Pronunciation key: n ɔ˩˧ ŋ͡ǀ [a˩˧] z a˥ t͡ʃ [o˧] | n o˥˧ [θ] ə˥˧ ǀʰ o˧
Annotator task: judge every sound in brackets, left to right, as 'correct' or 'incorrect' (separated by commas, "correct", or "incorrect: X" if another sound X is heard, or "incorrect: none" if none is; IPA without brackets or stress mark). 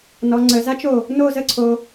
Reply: incorrect: ə˩˧, incorrect: o˧˩, incorrect: z